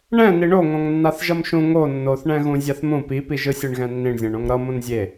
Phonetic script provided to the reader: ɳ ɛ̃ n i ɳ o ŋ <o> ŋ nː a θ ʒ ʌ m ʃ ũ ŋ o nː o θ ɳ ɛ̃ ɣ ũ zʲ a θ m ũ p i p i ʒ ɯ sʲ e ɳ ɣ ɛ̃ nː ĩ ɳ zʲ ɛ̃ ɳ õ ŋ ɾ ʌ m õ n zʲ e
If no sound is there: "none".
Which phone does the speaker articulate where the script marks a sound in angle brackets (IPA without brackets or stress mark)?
õ